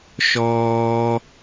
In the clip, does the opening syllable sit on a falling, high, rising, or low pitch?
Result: high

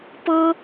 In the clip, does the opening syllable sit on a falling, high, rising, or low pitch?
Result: high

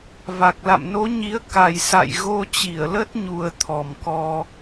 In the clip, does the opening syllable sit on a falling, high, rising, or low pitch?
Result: low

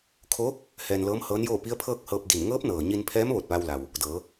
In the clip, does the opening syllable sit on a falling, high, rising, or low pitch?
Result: rising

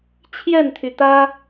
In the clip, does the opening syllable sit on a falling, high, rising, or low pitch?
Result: falling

